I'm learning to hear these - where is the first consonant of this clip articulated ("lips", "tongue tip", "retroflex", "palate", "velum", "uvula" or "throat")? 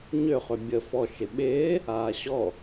palate